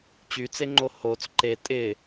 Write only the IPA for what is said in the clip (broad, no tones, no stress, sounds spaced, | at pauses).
t͡ɕ y t͡s e ŋ͡ǃ o h o t͡s ǃ e tʼ ɪ